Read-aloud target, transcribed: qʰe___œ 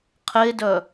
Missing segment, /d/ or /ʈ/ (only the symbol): d